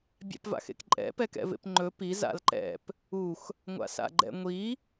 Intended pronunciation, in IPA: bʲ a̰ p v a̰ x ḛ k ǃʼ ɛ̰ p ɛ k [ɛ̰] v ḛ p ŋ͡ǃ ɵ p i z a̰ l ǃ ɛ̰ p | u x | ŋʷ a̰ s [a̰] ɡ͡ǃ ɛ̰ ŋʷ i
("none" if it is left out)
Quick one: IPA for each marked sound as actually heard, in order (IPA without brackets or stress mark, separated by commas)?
ɛ̰, a̰